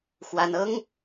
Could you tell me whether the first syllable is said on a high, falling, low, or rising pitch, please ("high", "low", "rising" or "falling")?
high